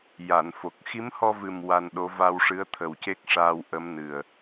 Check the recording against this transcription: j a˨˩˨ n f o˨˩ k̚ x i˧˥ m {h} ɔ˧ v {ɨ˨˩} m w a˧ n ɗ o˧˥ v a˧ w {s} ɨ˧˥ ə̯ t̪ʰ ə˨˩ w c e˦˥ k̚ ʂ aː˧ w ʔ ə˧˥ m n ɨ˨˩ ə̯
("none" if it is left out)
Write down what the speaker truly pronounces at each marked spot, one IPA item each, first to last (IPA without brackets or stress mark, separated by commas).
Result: h, ɨ˨˩, ʂ